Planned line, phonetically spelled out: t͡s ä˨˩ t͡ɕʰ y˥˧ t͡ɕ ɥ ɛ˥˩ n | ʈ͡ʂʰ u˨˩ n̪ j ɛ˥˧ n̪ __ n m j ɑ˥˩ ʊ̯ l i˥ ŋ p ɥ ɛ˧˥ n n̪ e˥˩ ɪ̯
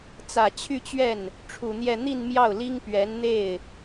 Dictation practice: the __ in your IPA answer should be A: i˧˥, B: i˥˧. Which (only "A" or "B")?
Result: B